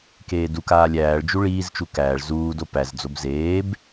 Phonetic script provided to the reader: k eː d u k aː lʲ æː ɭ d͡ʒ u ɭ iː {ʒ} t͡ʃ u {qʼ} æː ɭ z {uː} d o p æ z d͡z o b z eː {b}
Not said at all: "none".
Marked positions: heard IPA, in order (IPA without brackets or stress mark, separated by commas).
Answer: z, k, uː, b